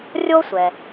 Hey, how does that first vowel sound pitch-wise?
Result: high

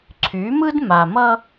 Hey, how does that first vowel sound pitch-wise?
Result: rising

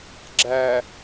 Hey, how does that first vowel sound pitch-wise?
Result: low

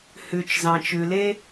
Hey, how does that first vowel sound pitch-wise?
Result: low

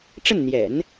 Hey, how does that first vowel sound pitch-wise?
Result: falling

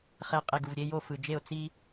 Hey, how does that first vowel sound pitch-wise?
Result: low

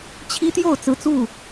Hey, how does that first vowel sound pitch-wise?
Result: high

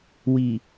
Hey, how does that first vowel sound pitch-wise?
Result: low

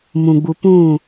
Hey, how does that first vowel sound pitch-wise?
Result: low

